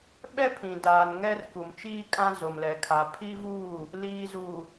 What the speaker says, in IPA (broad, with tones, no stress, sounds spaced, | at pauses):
ɓ ɛ˦ pʰ ĩ˨ d aː˨ n ŋ ɛ˦ r k u˨ m t͡ʃ iː˦ kʼ ã˦ z o˨ m l ɛ˨ kʰ a˨ pʰ i˦ v uː˦˨ | l iː˨ z uː˨